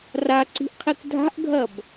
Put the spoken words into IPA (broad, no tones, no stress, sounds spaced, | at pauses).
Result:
r a ǀ i̤ ʔ qʰ i k dʱ a̤ ʔ ɡʱ ɐ b